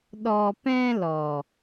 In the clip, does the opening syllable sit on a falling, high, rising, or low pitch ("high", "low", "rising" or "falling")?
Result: low